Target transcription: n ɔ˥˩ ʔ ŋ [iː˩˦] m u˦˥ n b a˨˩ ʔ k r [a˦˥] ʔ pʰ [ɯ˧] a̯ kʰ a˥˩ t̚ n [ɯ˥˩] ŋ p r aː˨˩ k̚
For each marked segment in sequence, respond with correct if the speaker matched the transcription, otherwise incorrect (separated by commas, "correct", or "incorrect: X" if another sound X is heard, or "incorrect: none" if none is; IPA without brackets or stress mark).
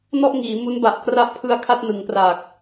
correct, correct, correct, incorrect: ɯ˩˦